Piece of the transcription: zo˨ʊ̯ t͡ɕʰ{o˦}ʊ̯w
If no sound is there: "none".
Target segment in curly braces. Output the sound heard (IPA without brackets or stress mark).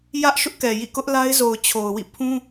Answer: o˨